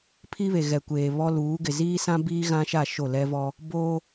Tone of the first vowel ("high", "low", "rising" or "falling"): high